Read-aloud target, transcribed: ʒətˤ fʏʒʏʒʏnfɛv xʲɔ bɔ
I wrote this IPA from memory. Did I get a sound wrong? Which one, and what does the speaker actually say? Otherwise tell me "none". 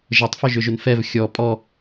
b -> pʼ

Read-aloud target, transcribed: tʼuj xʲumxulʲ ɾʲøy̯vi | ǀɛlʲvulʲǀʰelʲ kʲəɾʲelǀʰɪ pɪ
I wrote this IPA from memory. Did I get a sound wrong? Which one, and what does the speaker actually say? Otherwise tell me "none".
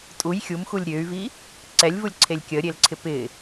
none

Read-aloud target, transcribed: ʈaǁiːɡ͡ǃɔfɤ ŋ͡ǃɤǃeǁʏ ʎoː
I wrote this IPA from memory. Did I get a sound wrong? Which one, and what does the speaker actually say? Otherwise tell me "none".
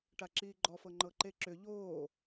none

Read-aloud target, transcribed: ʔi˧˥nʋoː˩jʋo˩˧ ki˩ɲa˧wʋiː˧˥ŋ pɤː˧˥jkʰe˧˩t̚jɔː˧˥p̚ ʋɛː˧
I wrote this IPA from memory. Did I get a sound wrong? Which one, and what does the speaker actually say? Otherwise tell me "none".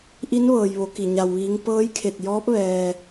oː˩ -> ɤː˩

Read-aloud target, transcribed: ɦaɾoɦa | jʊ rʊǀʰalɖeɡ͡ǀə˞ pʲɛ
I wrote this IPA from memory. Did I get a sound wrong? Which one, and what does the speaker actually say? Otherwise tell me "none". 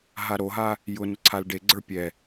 r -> n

